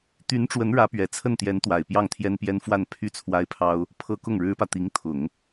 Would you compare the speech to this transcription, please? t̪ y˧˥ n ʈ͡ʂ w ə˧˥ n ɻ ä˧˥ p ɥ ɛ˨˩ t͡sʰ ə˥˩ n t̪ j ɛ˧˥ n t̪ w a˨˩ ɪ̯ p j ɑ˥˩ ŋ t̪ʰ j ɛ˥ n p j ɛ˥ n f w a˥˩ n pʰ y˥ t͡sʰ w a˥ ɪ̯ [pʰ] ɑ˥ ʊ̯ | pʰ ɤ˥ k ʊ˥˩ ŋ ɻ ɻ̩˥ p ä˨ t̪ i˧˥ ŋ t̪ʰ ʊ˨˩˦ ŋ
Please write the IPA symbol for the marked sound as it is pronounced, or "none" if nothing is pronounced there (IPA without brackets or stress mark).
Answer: pʰ